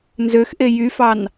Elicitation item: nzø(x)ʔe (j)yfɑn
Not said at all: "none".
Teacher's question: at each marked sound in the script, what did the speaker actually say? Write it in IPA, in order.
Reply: x, j

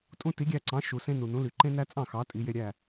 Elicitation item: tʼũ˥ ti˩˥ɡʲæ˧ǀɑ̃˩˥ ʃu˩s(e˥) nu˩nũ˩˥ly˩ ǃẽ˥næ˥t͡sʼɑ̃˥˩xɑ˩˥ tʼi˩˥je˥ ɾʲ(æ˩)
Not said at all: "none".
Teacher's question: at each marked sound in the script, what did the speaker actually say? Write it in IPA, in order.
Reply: ẽ˥, æ˥˩

